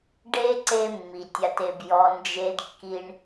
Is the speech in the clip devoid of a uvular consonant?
yes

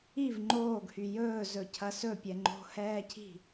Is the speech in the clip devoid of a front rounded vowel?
no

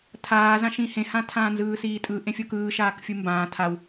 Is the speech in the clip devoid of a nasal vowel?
no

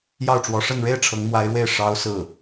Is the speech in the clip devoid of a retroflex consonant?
no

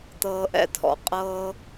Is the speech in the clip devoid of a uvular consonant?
no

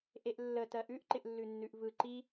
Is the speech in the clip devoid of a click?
no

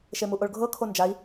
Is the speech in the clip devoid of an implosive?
yes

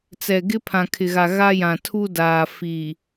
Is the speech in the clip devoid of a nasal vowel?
no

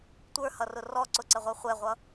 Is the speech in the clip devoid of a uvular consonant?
no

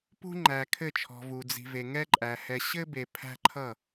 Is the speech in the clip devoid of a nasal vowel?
yes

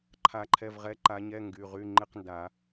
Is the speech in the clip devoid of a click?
no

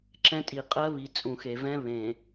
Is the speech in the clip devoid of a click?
no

